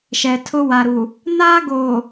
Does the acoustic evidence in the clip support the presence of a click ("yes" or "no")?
no